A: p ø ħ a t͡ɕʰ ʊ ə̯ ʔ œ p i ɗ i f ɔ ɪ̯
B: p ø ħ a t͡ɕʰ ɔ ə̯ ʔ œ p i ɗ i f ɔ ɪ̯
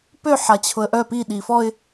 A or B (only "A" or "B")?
A